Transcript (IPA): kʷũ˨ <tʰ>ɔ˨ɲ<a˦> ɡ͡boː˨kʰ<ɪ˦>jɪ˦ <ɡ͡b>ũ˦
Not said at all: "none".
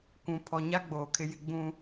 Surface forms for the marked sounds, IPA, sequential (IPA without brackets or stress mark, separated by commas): pʰ, a˦, ɪ˦, ɡ͡b